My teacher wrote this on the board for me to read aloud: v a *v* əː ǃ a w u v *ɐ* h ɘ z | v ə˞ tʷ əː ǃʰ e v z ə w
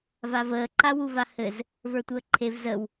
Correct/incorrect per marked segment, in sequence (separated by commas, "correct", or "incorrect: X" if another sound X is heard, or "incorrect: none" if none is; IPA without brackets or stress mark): correct, incorrect: a